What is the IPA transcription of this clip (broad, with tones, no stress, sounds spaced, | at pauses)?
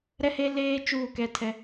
ɾ ɛ˦ h e˦ l eː˦ t͡ʃ uː˦˨ k ɛ˦ tʰ ɛ˦